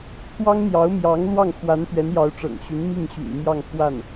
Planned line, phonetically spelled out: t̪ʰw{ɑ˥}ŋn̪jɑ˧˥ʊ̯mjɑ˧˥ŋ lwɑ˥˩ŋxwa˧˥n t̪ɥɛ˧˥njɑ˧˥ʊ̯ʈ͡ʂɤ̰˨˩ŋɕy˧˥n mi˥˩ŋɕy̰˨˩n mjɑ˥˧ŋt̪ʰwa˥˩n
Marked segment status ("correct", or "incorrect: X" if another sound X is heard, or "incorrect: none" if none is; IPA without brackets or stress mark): correct